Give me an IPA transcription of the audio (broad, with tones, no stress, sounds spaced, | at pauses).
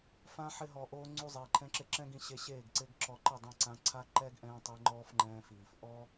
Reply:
f ã˦ ħ ɪ˦ ɦ ɔ˧ ʔ oː˦ ŋ͡ǀ u˧ zˤ iː˨ ǃʰ ɛ̃˦ ǁ ɪ˦ ǁ ɛ̃˦ ɡ ĩ˧ ɕ e˧ ɕ eː˦˨ ɡ ǀ ɪ˦ ɡ ǁ ɔ˧ ǃ ɪ˦˨ dˤ ɛ̃˧ ǀ ã˧ ǀʰ a˦ ǃ ɛ˦ ɡ ʔ ɛ̃ː˧ tˤ ɪ˧ ŋ͡ǃ ɔː˦ f ŋ͡ǃ ɛ̃ː˧ f iː˨ f ʔ ɔ˦